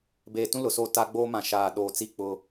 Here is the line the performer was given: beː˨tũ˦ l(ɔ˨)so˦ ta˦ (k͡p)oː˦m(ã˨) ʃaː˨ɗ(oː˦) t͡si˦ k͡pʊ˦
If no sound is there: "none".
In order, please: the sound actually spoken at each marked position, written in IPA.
ʊ˨, ɡ͡b, ã˨, oː˨

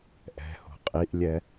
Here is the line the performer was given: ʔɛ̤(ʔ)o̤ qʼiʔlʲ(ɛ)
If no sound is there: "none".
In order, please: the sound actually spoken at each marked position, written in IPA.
h, ɛ

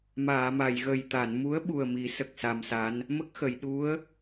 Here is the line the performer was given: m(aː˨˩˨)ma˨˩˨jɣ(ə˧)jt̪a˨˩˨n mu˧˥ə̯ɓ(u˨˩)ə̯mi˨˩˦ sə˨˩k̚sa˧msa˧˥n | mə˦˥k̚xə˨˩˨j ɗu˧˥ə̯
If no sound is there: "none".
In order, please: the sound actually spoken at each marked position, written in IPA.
aː˨˩˨, ə˨˩, u˨˩

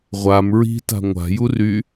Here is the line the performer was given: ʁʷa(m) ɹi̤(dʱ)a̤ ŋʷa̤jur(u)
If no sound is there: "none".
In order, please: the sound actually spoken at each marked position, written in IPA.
m, t, y

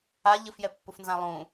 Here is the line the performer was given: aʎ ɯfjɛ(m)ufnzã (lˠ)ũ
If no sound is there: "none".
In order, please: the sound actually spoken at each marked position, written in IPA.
pː, lˠ

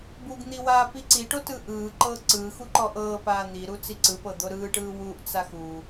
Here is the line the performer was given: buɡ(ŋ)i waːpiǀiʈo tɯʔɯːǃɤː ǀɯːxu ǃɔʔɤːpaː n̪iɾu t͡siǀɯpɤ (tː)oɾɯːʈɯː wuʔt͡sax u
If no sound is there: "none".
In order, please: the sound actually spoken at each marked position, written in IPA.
n̪, d̪

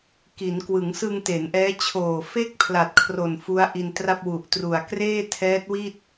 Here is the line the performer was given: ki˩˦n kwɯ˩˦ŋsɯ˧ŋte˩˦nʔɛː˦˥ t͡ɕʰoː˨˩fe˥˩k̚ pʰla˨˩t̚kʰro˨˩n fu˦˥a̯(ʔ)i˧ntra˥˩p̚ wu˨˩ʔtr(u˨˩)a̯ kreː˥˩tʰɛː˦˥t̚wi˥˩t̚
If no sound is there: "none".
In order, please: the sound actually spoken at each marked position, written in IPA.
ʔ, u˨˩

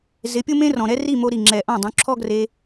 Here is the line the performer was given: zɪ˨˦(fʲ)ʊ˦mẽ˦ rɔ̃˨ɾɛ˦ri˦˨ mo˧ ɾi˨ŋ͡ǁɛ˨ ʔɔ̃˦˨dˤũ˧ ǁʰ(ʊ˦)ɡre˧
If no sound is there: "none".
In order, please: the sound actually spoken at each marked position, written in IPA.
pʲ, ɔ˦

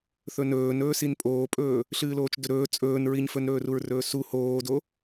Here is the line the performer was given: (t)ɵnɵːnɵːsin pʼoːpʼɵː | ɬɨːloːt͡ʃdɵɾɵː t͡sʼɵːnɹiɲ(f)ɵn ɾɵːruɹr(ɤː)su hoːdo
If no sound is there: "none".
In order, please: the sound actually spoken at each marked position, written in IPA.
θ, f, ɵː

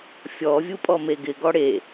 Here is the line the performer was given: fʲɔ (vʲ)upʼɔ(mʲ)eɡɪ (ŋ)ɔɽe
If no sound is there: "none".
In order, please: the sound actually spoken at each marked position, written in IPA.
vʲ, m, ɡ

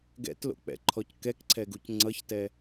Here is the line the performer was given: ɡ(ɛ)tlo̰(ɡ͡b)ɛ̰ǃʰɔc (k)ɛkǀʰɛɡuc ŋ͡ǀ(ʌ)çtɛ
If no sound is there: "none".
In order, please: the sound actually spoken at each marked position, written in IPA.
ɛ̰, k͡p, k, ʌ

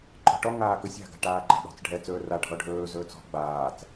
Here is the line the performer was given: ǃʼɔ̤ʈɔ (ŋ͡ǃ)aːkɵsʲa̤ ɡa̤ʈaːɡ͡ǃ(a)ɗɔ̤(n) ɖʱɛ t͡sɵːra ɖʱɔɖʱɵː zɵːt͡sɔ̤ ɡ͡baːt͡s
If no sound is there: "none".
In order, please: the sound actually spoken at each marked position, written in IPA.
ŋ, a̤, t͡s

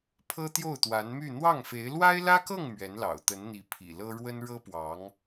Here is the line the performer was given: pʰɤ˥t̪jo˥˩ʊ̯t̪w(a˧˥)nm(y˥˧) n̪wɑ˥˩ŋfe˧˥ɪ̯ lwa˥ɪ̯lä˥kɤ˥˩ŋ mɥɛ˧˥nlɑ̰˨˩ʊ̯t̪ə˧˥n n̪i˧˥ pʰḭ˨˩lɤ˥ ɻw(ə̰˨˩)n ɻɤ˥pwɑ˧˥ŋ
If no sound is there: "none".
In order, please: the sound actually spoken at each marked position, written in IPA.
a˧˥, y˥˧, ə˥

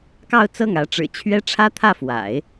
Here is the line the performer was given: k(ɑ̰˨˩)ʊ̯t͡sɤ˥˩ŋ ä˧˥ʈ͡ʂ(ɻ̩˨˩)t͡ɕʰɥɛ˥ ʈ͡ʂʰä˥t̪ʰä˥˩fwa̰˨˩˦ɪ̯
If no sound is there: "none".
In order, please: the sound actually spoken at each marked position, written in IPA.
ɑ˥˧, ɻ̩˨˩

